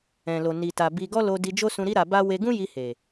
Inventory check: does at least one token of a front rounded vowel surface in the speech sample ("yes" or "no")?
no